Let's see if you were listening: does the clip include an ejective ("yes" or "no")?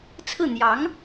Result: no